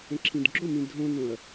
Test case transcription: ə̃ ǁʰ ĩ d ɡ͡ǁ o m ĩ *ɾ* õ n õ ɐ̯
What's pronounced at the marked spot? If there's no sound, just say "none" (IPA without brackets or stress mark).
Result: dʱ